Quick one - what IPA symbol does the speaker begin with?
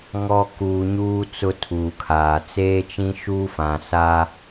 ŋ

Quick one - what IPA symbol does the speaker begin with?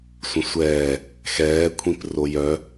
sʷ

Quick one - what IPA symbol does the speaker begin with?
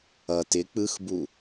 ʌ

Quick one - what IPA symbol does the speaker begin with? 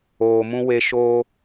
oː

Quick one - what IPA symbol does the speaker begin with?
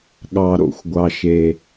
ɠ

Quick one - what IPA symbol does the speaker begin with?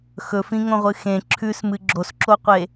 x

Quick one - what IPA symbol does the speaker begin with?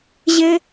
ʑ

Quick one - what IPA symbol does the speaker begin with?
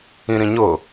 ĩ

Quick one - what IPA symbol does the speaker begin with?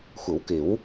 xʷ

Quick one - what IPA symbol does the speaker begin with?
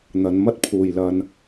n̪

